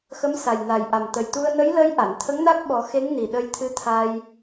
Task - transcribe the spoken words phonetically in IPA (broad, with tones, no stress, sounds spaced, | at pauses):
x ə˧˥ m s a˨˩ j n a˨˩ j ʔ a˨˩ m t̪ ə˨˩ j t̪ u˧ ə̯ n ə˧˥ j l əː˧˥ j ʔ a˨˩˨ n t̪ʰ ə˧˥ ŋ n a˦˥ k̚ ɓ ɔ˨˩˦ x e˧˥ ŋ n i˨˩ ɗ ə˧ j t̪ʰ ɨ˧˥ t̪ʰ a˧ j